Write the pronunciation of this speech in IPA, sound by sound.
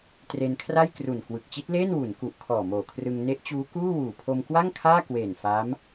t r e˧ n kʰ r a˥˩ j k r u˨˩ n k w ɯ˨˩ k̚ t͡ɕ i˦˥ t̚ l eː˥˩ n w u˩˦ n k u˨˩ ʔ kʰ ɔː˨˩ m oː˨˩ kʰ r ɯ˧ ŋ n e˦˥ ʔ t͡ɕ uː˦˥ k uː˥˩ w uː˨˩ pʰ o˧ m k w a˥˩ ŋ kʰ aː˥˩ k w eː˨˩ n f a˦˥ m

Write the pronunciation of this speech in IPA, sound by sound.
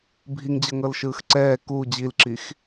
bʱ i ŋ d͡ʑ ɤ ŋ ɤ l ʃ ɯː x ǀ ɛː k u d͡ʑ i l ǁ i x

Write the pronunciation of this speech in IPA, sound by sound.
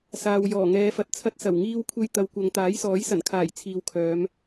s aː˨ w j ɔː˨˩ ŋ ɛː˨˧ f ɐ˨ t̚ t͡sʰ ɐ˧ t̚ s ɐ˨˩ w ŋ iː˧ w kʷʰ e˧ j t̪ ɐ˨˧ w kʷ ɐ˨˧ ŋ t̪ aː˨˥ j s ɔː˨˥ j s ɐ˨˩ n kʰ aː˨˩ j t͡sʰ iː˨ w kʰ œː˨˧ m

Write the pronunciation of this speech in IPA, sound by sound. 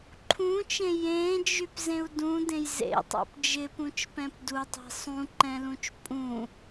ǃʰ ũ t͡ʃ ẽ j ẽ d͡ʒ y p z ẽ u̯ d ũ d ẽ j z ḛ tˤ ṵ p d͡ʒ ɪ p ũ t͡ʃ p ɛ̃ p d u tˤ e̤ sˤ ũ ǃ ɛ̃ l ũ t͡ʃ pʼ ũ

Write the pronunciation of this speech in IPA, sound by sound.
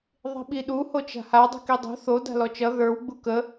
ðˤ i̤ ɓ i ɗ u h o t͡ʃ a̤ h a dˤ i̤ k i dˤ o̤ θ o d a̤ l ɔ t͡ʃ ʌ ð ə˞ w ɡ͡b u k ə

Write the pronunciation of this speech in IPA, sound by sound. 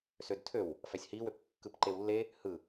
s ø d tʰ ø w | f æ sʲ h i w ø p kː ɯ p ǃ e w lː e | h ɯ

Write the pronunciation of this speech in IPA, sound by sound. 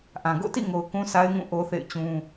ʔ ã˨ ɡ o̰˦˨ t ḭ˦˨ ŋ o˨ ʊ̯ k ũ˦ sʰ a˦ ɪ̯ ŋ ũ˦˨ ʔ o˦ θ ḛ˦˨ ɪ̯ t͡ɕ ũ˦

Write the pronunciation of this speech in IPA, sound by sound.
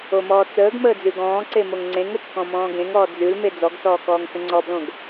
o m ɔː t͡s əː ɡ m əː d͡z ʉ ɡ ɔ̃ː ǀ e m o ŋ ŋ͡ǀ ẽ ŋ o t͡ʃ k ɔ̃ m ɔ̃ː ɡ ẽ ŋ ɔː d͡z ʉ l m e d͡z ɔ ɡ s ɔː k ɔː ŋ s ə̃ ŋ͡ǀ ɔ b l õ ɡ

